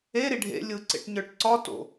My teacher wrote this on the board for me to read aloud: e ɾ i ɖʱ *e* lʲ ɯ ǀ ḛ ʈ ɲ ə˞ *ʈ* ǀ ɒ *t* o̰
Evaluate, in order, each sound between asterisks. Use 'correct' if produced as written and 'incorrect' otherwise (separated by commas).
incorrect, correct, correct